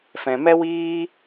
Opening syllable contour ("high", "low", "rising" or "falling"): low